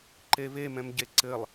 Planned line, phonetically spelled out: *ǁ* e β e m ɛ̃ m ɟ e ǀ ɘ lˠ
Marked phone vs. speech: incorrect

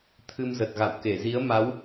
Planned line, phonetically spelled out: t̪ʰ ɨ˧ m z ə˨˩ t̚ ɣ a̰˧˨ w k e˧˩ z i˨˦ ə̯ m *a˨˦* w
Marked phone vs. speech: correct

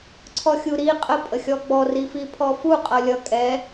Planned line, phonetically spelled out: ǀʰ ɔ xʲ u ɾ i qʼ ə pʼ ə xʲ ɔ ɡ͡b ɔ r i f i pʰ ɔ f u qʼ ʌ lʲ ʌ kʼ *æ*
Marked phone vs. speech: incorrect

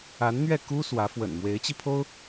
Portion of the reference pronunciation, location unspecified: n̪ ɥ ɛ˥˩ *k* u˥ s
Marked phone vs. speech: correct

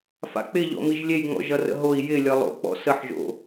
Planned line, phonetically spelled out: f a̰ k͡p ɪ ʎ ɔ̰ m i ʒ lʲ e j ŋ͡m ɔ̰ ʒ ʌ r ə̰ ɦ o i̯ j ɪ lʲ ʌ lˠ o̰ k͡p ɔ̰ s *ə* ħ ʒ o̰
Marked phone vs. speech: correct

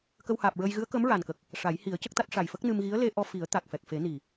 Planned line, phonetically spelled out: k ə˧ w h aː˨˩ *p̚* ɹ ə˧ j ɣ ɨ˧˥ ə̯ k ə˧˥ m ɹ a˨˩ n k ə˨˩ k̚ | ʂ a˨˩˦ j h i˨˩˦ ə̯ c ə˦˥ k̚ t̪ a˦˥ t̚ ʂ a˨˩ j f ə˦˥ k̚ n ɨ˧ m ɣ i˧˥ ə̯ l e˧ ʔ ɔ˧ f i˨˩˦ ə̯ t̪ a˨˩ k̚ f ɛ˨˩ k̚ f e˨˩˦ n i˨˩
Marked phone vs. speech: correct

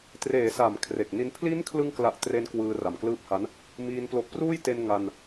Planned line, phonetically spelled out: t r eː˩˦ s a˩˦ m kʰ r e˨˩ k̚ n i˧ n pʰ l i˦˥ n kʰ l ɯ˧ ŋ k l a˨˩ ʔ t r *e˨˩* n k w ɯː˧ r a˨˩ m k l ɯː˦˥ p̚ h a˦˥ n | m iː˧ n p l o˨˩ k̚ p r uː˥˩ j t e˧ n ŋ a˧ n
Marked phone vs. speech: incorrect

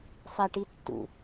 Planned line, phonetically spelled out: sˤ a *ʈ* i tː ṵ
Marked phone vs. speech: correct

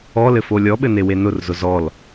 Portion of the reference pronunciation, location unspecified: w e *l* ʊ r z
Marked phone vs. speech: incorrect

